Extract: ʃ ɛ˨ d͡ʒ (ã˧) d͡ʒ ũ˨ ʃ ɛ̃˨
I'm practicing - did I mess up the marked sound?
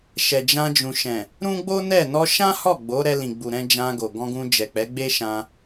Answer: no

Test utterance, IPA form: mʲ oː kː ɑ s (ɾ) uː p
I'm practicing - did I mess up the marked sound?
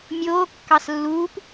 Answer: yes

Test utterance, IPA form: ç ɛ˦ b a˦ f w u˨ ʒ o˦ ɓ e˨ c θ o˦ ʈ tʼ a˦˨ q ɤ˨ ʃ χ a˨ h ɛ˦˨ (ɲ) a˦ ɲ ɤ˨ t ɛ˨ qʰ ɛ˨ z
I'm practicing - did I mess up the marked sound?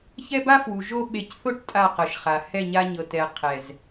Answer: no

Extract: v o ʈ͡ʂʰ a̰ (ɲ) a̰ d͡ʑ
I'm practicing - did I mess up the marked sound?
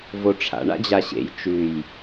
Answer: yes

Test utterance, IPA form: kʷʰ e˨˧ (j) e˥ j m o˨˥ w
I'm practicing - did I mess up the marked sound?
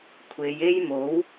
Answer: no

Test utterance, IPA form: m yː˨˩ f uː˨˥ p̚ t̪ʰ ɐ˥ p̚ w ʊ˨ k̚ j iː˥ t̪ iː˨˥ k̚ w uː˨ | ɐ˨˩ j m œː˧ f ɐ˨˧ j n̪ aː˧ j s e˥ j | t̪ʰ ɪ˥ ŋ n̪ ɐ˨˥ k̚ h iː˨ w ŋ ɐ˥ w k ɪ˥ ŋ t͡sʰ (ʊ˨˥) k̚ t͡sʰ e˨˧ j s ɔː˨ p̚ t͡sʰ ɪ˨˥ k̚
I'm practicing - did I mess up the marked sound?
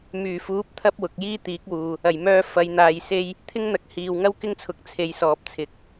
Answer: no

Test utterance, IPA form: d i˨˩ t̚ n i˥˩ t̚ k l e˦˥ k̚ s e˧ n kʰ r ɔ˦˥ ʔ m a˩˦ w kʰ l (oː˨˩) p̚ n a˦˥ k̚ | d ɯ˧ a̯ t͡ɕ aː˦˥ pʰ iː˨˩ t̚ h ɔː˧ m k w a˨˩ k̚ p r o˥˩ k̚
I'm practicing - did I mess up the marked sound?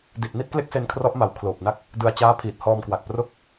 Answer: no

